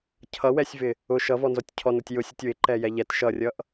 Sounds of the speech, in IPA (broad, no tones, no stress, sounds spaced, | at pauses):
cʰ ʌ w ɛ sʲ v ɪ | ʊ ʃ ʌ v ɔ n z ɔ tʲ cʰ ɔ n ʊ tʲ j ʊ sʲ ʊ tʲ w ɪ ǃ ɛ j ɛ ʎ ɛ t ʃ ʌ rʲ ʌ ʔ